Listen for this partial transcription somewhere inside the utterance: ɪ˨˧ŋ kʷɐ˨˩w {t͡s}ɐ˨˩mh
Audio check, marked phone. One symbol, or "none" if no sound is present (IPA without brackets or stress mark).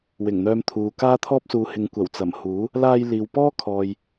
t͡s